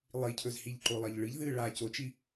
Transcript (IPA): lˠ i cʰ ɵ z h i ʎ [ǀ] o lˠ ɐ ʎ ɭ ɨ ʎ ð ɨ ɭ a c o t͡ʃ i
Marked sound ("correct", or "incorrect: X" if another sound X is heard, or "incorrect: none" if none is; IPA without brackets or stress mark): incorrect: ǃ